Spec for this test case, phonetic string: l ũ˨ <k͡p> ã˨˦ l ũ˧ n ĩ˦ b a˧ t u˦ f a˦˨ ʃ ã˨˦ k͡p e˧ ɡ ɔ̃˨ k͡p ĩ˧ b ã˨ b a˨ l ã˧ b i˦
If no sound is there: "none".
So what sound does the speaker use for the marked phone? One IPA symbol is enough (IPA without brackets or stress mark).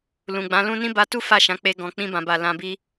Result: ɡ͡b